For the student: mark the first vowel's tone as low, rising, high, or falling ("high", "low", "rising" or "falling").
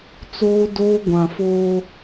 high